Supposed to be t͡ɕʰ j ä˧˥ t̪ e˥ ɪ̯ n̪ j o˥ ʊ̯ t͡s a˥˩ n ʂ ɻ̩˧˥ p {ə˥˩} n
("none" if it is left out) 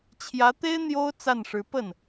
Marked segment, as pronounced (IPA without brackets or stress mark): ə˥˩